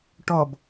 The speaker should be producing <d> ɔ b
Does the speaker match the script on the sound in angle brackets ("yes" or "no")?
no